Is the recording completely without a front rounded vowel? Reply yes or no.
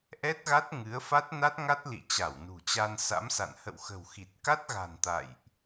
yes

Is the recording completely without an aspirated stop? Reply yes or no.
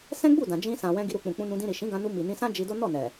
yes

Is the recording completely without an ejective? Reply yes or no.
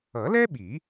yes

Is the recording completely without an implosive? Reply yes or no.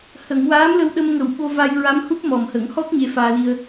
no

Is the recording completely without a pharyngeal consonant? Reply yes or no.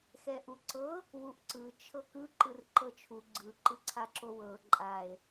yes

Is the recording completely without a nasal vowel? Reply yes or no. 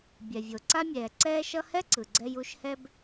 yes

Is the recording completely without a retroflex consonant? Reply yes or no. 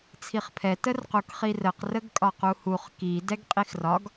yes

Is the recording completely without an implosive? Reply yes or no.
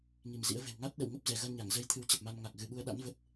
no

